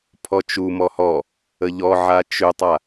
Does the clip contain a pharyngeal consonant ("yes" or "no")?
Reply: yes